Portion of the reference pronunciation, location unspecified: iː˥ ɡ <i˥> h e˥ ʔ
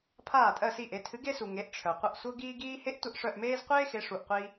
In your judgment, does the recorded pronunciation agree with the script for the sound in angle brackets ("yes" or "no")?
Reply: no